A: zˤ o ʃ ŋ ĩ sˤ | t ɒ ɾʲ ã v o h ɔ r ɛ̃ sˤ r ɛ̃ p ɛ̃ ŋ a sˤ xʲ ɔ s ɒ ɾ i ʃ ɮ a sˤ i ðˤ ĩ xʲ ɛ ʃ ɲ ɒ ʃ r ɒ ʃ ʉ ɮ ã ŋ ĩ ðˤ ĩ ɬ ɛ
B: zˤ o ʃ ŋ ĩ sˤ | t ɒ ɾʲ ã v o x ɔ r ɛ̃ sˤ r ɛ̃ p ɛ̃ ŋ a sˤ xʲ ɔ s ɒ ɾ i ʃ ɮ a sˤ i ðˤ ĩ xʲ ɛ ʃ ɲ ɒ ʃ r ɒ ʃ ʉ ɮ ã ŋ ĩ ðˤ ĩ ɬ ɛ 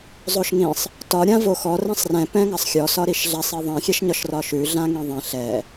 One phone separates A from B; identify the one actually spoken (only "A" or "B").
B